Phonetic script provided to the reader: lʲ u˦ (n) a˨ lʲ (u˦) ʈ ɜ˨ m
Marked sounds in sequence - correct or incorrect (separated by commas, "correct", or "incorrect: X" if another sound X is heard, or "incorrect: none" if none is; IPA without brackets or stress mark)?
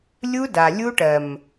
incorrect: d, correct